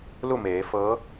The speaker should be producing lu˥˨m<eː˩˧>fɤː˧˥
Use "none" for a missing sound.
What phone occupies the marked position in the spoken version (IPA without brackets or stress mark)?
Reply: eː˩˧